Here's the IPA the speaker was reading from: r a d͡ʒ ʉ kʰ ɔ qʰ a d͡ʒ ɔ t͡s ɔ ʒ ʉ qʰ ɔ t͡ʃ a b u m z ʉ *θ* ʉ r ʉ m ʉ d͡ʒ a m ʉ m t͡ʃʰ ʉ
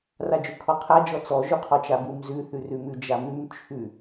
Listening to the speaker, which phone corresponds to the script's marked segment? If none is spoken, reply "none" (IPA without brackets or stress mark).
θ